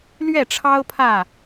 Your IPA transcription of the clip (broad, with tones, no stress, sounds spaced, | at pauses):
l ɥ ɛ˥˨ ʈ͡ʂʰ ɑ˦ ʊ̯ pʰ ä˥˨